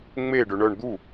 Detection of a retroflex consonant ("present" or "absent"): present